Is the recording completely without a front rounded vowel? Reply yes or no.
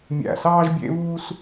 yes